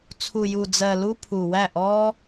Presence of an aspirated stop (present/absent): present